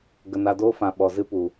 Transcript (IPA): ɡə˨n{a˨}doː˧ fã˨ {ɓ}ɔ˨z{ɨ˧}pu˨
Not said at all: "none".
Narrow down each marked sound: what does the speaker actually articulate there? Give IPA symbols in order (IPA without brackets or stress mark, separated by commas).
a˨, ɓ, ɨ˧